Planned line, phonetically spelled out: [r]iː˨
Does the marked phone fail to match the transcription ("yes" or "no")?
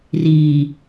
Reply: no